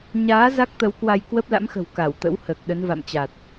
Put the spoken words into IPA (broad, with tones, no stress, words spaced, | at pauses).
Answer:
ɲaː˨˦ za˦˥k̚t̪ə˨˦wkwa˧j kwəː˦˥p̚la̰˧˥mxə̤˨˩w ka˧˩wt̪ə̰˧˥w həː˨˩k̚ɗə˨˦n va̰˧˨mt͡ɕa˨˩t̚